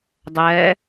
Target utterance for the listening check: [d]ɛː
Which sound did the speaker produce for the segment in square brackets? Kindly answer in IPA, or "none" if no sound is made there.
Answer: dˤ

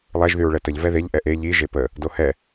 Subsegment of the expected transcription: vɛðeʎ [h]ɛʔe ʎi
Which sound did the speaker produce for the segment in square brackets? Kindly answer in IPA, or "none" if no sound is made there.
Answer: ʔ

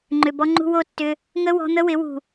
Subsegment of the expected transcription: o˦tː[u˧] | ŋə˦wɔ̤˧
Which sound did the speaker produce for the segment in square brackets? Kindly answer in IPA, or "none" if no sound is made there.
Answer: ʏ˧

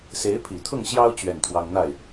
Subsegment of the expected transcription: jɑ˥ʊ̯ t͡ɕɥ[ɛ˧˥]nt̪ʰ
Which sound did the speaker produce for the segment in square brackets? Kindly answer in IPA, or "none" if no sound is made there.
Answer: ɛ˥˩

